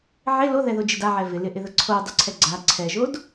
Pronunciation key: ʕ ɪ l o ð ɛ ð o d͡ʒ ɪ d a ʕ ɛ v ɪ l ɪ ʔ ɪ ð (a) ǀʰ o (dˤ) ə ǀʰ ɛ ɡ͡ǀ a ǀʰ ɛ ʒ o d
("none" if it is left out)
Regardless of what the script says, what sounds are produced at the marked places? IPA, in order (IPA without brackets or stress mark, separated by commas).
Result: ə, dˤ